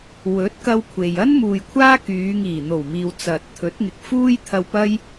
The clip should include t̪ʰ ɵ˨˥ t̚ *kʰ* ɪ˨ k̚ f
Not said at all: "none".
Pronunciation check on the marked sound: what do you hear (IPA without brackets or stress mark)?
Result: ŋ